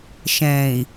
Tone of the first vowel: low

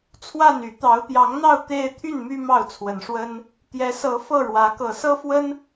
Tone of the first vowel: falling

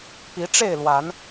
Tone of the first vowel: rising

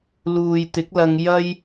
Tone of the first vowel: low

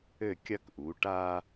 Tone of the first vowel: falling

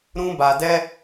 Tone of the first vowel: high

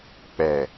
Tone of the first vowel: low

